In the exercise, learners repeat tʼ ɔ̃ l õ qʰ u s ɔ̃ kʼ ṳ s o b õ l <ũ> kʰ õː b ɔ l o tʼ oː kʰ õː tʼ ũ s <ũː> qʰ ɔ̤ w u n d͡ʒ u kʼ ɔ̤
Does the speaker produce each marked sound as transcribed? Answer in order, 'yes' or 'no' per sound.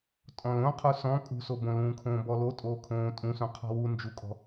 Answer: no, no

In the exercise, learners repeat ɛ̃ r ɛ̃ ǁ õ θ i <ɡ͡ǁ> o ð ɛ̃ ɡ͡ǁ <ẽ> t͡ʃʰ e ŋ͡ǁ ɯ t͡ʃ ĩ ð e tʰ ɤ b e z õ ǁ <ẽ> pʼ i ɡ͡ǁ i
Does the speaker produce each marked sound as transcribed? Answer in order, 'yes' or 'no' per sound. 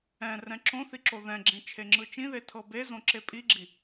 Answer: no, yes, no

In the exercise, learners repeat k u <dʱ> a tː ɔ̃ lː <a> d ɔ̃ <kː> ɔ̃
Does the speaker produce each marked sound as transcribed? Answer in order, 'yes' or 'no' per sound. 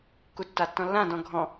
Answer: no, no, no

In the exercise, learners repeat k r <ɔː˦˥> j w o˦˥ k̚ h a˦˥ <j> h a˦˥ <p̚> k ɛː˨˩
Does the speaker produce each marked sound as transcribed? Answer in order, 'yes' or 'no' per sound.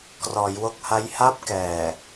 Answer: no, yes, yes

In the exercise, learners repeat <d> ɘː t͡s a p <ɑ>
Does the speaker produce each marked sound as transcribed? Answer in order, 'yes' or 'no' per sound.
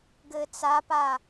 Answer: no, no

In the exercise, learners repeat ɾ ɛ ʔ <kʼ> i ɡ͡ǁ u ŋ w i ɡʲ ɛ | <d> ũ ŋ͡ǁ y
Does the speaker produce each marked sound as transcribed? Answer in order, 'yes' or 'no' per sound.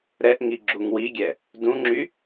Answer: no, yes

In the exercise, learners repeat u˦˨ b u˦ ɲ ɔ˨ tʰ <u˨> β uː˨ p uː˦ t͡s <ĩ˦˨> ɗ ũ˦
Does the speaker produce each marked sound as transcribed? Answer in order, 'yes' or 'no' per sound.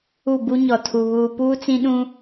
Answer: yes, no

